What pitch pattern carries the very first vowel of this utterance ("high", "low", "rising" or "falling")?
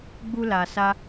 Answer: high